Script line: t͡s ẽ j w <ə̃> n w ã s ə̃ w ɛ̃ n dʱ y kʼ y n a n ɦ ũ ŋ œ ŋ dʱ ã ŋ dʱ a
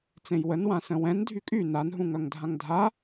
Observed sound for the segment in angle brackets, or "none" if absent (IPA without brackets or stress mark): ə